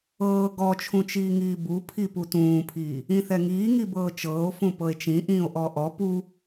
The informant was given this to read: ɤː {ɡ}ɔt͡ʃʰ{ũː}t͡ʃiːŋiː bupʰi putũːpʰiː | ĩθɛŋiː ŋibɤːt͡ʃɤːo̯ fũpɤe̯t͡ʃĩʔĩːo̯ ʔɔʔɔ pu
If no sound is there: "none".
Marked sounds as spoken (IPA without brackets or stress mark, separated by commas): ɡ, ũ